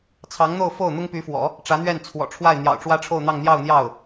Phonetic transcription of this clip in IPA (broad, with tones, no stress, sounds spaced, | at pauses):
t͡sʰ ɑ˧˥ ŋ n̪ o˥˧ ʊ̯ f o˥˩ ʊ̯ n̪ ʊ˥ ŋ p y˧˥ f w ɔ̰˨˩˦ | ʈ͡ʂ ä˧˥ n̪ ɥ ɛ˥˩ n t͡sʰ w ɔ̰˨˩ ʈ͡ʂʰ w a˥˩ ɪ̯ n̪ j ɑ̰˨˩ ʊ̯ ʈ͡ʂ w ä˥ ʈ͡ʂʰ o˥˧ ʊ̯ n̪ ɑ˥˧ ŋ n̪ j ɑ˥˧ ʊ̯ n̪ j ɑ˥˩ ʊ̯